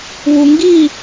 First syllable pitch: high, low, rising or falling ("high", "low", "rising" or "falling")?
low